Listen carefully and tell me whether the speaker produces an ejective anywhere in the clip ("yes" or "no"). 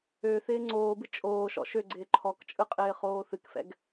yes